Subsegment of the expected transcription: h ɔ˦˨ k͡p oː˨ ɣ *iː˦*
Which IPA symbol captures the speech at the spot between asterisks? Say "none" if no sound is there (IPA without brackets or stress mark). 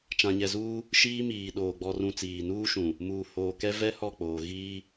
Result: iː˦